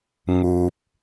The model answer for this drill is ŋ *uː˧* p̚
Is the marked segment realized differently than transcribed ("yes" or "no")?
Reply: no